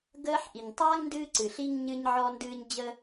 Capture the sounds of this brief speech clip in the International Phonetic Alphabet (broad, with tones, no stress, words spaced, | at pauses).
ɡəː˧ħʔi˨ɲtˤa˦ŋ ndɨː˦ǀɨ˨ɬi˦ŋ ɲɨ˦ɲ ʕɔ˦ndɨː˦ɲ d͡ʑə˦